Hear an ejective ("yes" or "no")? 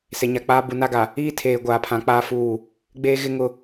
no